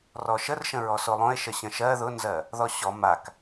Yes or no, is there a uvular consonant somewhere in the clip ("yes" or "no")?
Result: no